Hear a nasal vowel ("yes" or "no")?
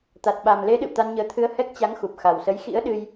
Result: no